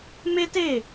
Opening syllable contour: high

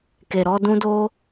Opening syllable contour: low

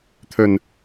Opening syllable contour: low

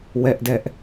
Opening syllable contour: high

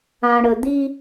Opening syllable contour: low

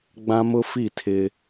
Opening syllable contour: high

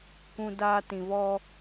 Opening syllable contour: high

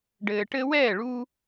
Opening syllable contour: low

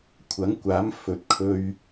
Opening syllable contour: rising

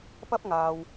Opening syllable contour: high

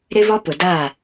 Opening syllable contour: high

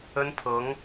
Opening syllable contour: high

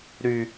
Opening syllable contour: high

